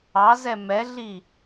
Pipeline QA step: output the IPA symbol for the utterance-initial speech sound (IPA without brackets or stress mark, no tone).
ɑ